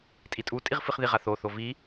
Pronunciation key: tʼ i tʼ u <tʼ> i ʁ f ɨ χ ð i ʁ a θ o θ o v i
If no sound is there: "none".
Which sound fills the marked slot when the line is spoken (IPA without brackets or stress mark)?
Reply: tʼ